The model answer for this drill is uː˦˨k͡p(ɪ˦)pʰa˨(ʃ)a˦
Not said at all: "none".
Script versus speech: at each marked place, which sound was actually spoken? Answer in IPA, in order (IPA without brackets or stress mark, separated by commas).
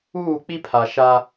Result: i˦, ʃ